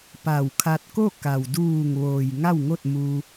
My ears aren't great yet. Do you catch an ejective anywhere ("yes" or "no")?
no